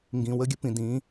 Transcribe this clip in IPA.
ŋ ɡ ĩ˨ w ə˦ ɡʲ ə˦ p ĩ˨ d ĩ˨˦

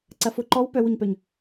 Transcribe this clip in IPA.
ǀ ɐ f ʊ ǃ ɔ w p œ w ʊ ɲ p œ ɲ

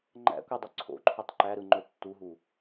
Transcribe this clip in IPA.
ŋ͡ǃ æ̰ kʷ e dˤ ɵ ǀʰ o̰ ǃʰ ɵ tˤ ǃ æ ɾ ɯ ŋ͡ǃ ɵ tː u ɦ u

